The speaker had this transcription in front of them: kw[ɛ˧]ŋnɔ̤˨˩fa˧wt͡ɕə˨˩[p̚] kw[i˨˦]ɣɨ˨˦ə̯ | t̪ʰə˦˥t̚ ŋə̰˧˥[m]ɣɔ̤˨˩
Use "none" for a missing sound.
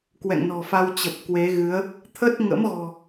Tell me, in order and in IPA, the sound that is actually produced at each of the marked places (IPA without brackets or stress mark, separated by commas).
ɛ̰˧˨, p̚, e˨˦, m